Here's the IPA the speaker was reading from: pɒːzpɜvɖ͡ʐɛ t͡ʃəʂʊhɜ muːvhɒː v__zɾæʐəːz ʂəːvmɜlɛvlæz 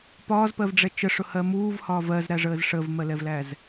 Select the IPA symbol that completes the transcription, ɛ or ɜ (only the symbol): ɜ